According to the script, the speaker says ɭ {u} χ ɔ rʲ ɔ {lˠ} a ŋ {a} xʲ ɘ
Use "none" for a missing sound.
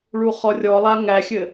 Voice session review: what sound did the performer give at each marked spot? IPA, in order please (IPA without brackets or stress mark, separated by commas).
u, lˠ, æ